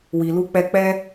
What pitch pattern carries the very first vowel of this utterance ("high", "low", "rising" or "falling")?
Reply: low